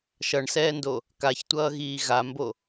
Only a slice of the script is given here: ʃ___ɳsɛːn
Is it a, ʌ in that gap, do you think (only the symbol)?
ʌ